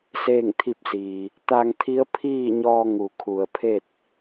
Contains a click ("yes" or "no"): no